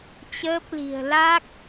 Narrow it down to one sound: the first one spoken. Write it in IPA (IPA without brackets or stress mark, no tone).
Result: t͡ɕ